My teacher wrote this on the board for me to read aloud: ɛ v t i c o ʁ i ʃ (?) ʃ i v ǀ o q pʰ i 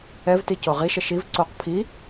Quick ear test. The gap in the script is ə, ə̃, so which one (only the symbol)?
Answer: ə